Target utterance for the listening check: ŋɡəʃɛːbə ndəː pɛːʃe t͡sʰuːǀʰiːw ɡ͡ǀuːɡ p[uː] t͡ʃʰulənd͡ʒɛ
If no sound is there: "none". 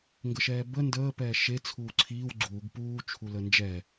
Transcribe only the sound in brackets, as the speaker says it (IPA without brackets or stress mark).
uː